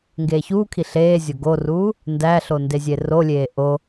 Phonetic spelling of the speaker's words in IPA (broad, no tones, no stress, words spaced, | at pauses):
ŋɡeːçuːkʰi ɬeːzʲo ɡoruː | ndæɬo ndezʲerolʲeː ʔo